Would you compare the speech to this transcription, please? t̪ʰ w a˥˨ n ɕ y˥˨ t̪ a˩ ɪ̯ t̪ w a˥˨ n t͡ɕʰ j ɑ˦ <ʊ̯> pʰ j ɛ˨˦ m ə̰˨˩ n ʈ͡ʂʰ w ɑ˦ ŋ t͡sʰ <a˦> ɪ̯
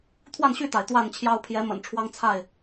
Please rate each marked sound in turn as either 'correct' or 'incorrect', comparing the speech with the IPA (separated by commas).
correct, incorrect